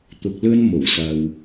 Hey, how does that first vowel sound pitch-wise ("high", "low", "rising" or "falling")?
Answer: low